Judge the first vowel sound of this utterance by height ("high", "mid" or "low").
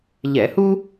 mid